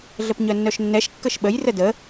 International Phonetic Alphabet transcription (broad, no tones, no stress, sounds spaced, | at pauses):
ɮ ə p ɲ œ nː œ ʃ nː ɛ ʃ kː ə ʃ ɓ ə j r ə d ə